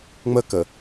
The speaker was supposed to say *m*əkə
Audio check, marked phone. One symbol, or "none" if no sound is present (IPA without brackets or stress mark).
ŋ͡m